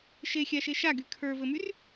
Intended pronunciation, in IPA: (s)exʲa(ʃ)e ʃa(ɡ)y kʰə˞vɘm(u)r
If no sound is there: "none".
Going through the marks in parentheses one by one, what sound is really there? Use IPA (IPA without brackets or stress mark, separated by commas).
ʃ, ʃ, ɡ, y